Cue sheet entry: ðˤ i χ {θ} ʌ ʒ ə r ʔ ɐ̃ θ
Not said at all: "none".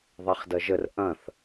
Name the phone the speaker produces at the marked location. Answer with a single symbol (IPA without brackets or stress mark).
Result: d